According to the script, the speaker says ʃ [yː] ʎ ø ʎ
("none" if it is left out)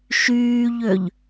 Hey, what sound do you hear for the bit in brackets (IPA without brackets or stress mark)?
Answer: yː